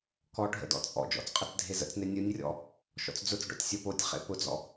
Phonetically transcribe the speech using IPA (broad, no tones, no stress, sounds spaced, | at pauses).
k ɔ ɖʱ ə̰ d ɔ̰ t͡sʼ ɔ̰ d͡ʒ ɔ̰ t͡s qʼ ə t͡s dʱ e z ə̰ t͡s n e nʲ ɯ nʲ rʲ ɔ̰ | ʃ ɔ̰ t͡s d͡z ʊ t͡s ɖ ɔ̰ tʲ sʲ o p o tʲ χ ḛ p ʊ d͡z ɔ̰